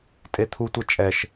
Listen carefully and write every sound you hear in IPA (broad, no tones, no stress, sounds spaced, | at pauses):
tʼ e t̪ʰ u tʷ ɛ t͡ʃʼ ɛ ʃ